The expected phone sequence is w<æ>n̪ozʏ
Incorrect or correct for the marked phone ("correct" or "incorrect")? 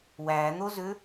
correct